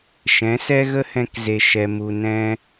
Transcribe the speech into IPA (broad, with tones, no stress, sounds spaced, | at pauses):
ʃ ɛ̃˨˦ s ɛ˦ ɣ ə˦ h ɛ̃˧ k z e˦ ʃ ɛ˦ m u˧ n ɛ̃˦